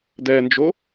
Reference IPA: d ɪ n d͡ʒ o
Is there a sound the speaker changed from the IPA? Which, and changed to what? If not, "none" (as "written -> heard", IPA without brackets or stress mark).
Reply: ɪ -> ɛ